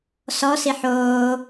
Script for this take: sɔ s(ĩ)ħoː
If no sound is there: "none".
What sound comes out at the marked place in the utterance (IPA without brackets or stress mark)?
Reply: i